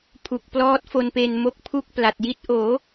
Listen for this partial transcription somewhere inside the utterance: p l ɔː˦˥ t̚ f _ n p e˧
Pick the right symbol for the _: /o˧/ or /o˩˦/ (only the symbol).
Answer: o˧